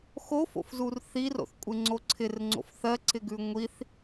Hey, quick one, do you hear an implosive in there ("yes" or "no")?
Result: no